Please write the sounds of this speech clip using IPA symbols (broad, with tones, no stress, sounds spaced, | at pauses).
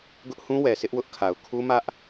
ɡ ʊ˦ ʔ h ũ˦ w ɛ˨ s ɪ˦ ʔ w ʊ˦ ʔ kʰ a˨ ʊ̯ kʰ u˦ m ä˦ ʔ